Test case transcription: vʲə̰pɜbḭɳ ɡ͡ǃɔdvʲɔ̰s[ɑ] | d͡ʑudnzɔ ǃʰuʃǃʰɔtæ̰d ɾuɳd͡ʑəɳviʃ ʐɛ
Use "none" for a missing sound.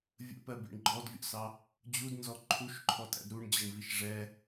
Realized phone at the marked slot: ɑ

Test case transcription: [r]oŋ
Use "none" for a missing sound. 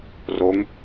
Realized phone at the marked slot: r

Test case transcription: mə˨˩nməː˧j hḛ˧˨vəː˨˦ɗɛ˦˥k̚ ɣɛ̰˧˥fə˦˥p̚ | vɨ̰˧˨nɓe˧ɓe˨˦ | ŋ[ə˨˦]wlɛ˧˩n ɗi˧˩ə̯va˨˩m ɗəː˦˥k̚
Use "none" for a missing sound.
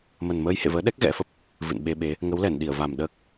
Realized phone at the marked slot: ə˨˦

